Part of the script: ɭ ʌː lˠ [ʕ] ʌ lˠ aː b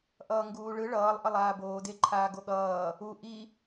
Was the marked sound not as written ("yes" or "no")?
yes